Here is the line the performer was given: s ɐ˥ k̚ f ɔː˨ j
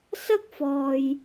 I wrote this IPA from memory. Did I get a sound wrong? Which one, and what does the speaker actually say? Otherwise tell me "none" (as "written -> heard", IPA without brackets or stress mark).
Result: none